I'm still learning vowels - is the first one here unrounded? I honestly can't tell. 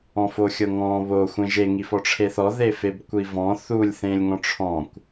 no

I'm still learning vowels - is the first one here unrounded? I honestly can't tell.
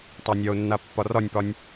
yes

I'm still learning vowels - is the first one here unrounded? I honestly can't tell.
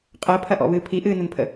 yes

